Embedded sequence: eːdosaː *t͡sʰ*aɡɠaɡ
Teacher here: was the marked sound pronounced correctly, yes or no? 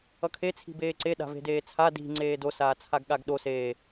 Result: yes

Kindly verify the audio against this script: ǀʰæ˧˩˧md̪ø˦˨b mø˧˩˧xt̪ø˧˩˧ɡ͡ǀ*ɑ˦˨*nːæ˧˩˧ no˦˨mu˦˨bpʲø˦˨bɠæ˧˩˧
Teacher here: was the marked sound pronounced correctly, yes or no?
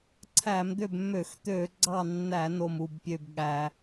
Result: yes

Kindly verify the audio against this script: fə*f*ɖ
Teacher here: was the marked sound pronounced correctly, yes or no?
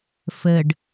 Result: no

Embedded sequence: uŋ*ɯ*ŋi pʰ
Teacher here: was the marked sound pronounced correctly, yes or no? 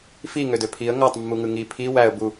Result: yes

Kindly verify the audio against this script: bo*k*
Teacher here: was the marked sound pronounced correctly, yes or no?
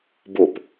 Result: no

